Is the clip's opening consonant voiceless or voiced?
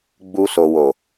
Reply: voiced